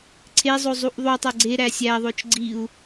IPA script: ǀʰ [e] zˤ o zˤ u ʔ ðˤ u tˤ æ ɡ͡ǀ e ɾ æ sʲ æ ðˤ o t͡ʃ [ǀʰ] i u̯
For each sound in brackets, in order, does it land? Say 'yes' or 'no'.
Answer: yes, no

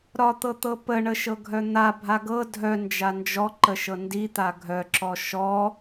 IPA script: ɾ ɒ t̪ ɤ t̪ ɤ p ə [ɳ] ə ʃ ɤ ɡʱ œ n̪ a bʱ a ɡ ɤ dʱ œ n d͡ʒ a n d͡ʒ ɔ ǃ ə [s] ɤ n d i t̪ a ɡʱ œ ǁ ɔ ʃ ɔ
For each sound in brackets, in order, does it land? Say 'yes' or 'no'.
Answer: yes, no

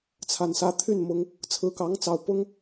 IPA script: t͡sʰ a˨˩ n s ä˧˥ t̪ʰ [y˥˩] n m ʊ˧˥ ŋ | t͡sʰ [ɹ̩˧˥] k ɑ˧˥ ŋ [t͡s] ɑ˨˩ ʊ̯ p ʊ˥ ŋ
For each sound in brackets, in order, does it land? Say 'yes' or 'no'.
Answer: yes, yes, yes

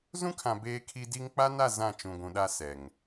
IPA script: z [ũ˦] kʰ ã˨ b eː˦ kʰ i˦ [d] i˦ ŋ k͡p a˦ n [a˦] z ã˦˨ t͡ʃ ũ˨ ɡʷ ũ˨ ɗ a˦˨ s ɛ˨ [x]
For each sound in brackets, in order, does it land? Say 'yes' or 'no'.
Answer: yes, yes, no, no

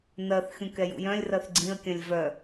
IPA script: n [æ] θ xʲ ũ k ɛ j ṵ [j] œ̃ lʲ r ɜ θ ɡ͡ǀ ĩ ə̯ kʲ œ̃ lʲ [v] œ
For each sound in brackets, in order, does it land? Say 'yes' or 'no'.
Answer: no, yes, yes

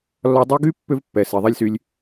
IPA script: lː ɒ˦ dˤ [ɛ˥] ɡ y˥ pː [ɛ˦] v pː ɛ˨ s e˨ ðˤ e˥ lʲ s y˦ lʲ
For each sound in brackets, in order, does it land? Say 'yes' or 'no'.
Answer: no, no

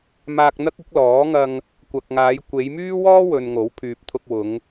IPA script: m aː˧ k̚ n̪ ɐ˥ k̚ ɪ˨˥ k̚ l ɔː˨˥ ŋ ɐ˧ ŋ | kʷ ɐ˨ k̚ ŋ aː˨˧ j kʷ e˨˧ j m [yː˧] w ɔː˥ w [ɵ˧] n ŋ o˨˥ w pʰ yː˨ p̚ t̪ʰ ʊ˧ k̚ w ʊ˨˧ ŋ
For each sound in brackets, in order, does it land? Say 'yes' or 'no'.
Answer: no, no

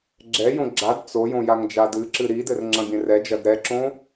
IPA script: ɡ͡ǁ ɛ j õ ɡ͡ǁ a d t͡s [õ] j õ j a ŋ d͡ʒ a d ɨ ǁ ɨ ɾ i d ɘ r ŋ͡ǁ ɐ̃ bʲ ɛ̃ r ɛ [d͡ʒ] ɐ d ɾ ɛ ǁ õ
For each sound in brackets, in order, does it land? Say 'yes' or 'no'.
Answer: no, yes

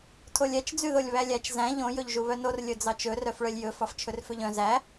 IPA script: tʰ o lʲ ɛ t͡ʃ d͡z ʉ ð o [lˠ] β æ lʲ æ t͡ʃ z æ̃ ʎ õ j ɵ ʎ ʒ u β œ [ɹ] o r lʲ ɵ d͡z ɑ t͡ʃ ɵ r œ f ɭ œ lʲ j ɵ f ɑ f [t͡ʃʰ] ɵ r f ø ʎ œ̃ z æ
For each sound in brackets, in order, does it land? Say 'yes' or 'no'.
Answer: no, no, yes

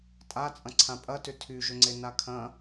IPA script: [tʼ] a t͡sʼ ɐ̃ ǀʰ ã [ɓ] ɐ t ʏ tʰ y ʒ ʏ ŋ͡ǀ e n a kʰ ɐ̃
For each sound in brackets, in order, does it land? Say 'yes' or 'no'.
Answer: yes, no

